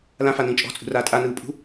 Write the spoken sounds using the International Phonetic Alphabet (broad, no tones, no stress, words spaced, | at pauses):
lãfanĩː t͡ʃʼɔ̤t͡sʼṳraː tʼanɯːpʼṳ